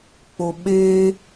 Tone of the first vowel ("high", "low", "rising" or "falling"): low